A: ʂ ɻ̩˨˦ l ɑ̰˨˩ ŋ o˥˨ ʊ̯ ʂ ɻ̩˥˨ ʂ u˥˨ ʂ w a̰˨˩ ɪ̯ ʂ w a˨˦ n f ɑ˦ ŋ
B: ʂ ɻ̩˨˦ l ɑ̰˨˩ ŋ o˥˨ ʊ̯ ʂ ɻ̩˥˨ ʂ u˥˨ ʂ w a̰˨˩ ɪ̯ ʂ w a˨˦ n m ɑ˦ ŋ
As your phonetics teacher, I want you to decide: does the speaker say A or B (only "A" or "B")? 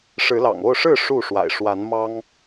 B